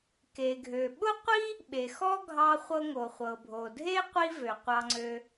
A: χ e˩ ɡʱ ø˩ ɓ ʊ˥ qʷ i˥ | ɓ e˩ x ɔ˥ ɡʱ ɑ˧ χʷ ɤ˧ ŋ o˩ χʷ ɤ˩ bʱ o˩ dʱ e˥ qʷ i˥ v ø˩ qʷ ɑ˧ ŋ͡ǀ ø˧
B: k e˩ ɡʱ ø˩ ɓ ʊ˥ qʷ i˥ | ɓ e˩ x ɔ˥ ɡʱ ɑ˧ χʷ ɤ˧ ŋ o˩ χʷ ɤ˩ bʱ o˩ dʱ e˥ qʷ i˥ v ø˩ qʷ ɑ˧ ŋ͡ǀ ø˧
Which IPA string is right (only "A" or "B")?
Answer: B